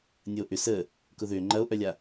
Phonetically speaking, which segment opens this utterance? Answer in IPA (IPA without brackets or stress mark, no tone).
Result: nʲ